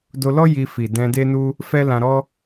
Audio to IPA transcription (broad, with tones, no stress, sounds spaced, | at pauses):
d o˧ l ɔ˦ j i˧ f i˨ d ɛ̃˧ d e˦ n u˦ | f ɛ˦ l ã˧ ɾ ɔ˦